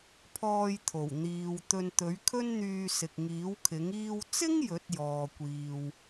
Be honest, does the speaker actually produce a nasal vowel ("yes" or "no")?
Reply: no